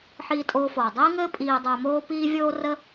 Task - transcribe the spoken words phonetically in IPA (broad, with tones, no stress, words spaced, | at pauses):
ħiː˧tʼoː˧foː˨ dˤiː˦ŋɘː˦ pʼiː˦dˤəː˦ moː˦piː˦ vʲoː˦rə˦